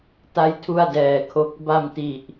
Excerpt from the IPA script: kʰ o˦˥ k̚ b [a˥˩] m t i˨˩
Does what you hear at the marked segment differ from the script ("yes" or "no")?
yes